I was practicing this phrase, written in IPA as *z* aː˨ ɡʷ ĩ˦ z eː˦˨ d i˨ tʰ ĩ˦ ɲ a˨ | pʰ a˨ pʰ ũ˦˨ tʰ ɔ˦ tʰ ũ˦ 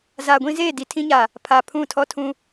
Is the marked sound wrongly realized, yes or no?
no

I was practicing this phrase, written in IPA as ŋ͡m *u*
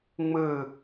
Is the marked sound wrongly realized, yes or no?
yes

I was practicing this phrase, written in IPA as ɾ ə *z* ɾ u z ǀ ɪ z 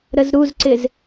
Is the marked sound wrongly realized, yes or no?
no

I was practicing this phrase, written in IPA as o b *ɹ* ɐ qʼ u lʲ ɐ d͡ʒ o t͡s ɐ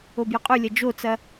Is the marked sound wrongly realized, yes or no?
yes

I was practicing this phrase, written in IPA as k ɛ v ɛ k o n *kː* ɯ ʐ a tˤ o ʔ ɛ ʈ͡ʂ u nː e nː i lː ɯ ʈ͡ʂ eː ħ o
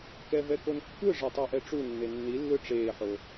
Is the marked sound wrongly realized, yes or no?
no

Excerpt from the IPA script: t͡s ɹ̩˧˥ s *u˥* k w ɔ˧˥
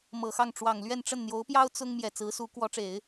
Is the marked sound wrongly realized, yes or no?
yes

